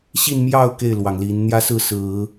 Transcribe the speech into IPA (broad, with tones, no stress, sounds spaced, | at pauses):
ɕ i˥˧ n m j ɑ˥˧ ʊ̯ k e˥˩ ɪ̯ l w ɑ˩ ŋ l i˧˥ n n̪ j ä˥ s ɹ̩˥˩ s ɹ̩˨˩˦